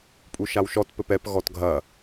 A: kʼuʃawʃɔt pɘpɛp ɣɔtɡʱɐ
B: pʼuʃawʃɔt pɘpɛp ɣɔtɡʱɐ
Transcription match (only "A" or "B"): B